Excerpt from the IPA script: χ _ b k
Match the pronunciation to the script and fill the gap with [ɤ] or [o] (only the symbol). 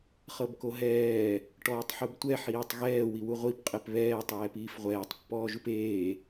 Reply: ɤ